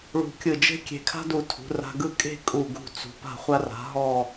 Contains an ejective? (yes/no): yes